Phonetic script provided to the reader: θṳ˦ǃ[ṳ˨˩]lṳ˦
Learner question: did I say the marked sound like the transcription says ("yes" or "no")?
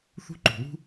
yes